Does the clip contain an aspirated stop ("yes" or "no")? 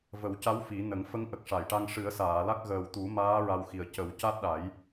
no